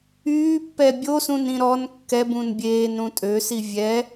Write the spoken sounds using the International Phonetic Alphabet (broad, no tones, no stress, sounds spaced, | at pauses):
yː pː ɛ bʲ o s ũ n ĩ ɾ ɔ n kː ɛ b ũ n bʲ eː n ɾ ũ tʼ ø s i vʲ ɛ